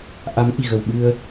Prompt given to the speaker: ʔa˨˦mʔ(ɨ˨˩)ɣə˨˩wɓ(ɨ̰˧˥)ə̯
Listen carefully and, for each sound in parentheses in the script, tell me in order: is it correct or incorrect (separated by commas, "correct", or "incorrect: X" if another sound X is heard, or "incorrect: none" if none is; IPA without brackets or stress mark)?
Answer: incorrect: i˨˩, incorrect: ɨ˧